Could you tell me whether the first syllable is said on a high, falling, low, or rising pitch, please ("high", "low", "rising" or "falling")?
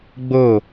falling